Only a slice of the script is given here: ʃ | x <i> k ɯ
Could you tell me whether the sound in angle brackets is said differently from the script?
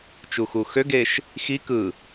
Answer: no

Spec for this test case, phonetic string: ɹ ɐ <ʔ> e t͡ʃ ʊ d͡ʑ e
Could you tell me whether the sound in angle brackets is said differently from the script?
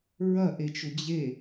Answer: no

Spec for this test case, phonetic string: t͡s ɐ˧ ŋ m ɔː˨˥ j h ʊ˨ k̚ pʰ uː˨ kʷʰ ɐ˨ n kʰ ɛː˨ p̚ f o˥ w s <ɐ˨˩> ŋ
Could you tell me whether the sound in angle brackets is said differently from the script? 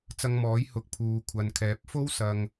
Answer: yes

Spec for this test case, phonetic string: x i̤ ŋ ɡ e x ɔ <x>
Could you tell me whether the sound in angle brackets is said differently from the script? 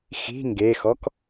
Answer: yes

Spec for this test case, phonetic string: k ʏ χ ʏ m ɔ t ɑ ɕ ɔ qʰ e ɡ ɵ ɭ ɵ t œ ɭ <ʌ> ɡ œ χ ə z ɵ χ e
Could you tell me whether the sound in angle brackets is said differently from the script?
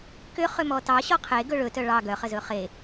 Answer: yes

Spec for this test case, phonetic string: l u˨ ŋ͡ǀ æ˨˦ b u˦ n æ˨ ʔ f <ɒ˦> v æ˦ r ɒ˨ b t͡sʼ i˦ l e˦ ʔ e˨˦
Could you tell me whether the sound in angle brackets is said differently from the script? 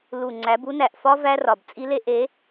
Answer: no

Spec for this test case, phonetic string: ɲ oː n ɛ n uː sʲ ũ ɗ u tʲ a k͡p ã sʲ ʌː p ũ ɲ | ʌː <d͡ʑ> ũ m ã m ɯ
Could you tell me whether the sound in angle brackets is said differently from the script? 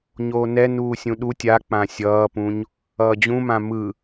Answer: no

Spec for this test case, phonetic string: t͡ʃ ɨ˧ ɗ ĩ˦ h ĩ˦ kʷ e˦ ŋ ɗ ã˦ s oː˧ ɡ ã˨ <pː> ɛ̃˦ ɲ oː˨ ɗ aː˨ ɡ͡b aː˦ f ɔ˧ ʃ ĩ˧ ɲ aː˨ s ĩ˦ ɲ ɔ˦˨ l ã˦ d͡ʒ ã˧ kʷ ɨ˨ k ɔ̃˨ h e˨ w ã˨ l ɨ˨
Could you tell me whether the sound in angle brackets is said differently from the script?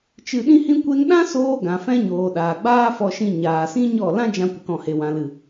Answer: yes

